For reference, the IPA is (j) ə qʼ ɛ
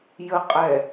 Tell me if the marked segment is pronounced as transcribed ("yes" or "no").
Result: yes